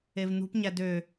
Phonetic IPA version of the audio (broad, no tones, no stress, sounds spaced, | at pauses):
e v n̪ ṳ p ɲ æ d ø